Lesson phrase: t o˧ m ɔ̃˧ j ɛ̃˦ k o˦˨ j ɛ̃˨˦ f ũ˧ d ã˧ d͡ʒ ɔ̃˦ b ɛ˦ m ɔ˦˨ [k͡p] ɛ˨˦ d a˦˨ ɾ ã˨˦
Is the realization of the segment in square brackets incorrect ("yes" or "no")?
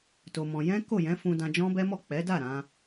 no